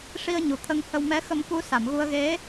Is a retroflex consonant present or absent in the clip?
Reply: present